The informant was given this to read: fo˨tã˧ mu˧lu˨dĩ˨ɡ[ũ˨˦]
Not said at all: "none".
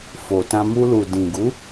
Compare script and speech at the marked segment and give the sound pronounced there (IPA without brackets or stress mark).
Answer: u˨˦